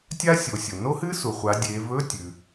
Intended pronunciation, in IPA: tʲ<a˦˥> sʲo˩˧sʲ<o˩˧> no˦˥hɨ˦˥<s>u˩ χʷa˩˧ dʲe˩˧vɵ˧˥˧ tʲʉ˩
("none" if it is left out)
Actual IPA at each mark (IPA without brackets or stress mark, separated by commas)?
a˦˥, o˩, s